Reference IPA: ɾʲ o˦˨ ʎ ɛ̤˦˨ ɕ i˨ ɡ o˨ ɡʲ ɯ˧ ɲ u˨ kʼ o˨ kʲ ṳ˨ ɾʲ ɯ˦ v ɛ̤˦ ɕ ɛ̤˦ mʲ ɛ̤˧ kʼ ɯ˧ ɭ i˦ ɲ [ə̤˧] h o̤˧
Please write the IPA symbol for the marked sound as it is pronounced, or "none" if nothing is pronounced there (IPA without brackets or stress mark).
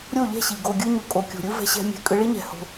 ɛ̤˧